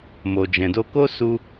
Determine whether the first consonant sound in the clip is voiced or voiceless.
voiced